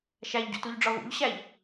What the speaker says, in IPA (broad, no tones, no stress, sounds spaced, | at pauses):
ʃ æ ʎ ɟ ṵ t u ʎ ɖ͡ʐ ɒ v ṵ ʎ ɕ æ ʎ